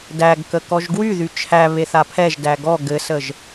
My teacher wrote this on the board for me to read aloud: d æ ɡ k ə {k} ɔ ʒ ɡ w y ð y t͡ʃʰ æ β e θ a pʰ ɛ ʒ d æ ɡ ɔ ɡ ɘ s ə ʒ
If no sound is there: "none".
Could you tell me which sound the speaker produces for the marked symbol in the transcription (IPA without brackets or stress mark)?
k